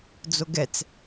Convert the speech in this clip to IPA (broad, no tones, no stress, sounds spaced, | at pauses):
d͡z o ɡ ɛ t͡s